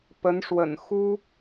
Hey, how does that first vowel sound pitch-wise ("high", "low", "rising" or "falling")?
rising